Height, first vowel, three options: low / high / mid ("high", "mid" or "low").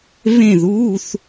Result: mid